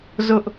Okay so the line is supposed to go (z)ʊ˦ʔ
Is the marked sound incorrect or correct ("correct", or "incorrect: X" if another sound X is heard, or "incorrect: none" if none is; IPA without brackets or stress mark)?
correct